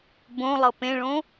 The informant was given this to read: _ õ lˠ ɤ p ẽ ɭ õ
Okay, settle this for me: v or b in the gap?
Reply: b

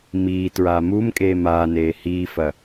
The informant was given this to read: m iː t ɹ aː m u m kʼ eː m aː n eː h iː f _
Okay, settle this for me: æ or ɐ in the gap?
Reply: ɐ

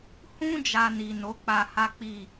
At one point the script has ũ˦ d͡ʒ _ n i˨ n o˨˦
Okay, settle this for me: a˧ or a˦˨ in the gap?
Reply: a˧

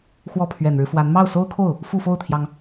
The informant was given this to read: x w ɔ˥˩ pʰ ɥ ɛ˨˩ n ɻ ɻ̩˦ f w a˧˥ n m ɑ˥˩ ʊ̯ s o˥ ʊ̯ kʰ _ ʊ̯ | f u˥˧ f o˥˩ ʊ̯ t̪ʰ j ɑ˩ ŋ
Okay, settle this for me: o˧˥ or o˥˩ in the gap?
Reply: o˥˩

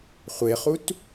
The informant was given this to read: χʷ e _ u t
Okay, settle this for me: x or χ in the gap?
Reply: χ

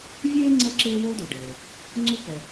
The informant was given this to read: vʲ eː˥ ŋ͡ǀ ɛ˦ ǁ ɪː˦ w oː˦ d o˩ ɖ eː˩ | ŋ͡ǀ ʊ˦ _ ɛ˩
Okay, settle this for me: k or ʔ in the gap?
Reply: k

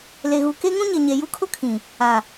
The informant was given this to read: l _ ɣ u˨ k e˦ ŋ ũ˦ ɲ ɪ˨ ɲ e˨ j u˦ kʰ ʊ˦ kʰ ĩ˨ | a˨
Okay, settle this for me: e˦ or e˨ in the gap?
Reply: e˨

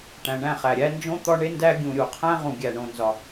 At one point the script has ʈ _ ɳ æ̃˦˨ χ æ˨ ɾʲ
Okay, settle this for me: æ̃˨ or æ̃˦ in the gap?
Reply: æ̃˨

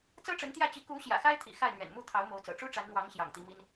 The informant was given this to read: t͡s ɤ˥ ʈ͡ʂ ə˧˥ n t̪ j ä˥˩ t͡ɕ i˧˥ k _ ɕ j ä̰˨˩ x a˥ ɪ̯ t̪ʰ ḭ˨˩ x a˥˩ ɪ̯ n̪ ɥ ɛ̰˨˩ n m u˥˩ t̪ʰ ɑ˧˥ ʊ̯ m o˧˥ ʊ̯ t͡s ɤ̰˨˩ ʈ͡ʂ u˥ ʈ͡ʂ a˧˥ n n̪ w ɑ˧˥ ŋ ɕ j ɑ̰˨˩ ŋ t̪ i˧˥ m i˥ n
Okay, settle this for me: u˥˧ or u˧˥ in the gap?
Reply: u˧˥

